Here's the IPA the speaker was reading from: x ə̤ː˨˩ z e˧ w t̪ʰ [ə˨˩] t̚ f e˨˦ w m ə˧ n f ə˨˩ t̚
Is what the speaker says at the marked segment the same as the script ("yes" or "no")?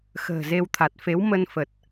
no